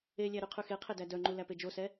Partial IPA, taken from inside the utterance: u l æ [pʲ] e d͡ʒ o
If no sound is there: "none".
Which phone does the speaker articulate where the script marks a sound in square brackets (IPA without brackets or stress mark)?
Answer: p